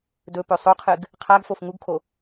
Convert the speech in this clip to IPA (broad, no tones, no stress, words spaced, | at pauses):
dɵpɵ sˤoqʰɨɡ | qʰaɡfof ŋuɡkʰo